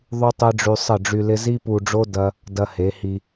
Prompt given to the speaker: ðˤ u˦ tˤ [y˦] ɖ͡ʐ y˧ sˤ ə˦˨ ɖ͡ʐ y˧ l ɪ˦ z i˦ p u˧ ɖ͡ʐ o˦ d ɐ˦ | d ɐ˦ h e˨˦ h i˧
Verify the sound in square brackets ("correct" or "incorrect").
incorrect